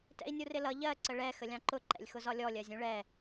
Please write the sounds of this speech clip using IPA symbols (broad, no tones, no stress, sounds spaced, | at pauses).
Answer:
t ɛ̰ i̯ nʲ u r ɪ l ʌ ʎ ɜ ǀ ə ɭ ɛ x ə lʲ ɑ̃ ǃ ʊ ǃ ɛ̰ lʲ x ʊ z ɒ lʲ ɔ lʲ ɜ zʲ ũ ɭ ɛ